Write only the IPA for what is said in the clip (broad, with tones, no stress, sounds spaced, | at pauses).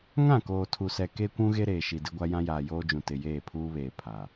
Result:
ŋ ã˦˨ k oː˨ tʰ u˨ s ɛ˨ k e˦ kʷ ũ˦ ɣ e˦ ɾ eː˨ ʃ i˨ d ɪ˦ ɡʷ a˦ j ã˦ j aː˨ j oː˦ d͡ʒ ũ˨ t ɪ˨ j eː˦˨ pʰ uː˦ β eː˨ pʰ a˨